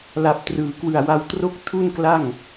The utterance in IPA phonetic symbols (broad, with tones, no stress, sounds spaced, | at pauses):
l a˨˩ p̚ t r ɯː˩˦ k w ɯ˨˩ a̯ w a˧ w t r o˥˩ k̚ tʰ u˥˩ n k l a˥˩ ŋ